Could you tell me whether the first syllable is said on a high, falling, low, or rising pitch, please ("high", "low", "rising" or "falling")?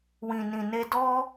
low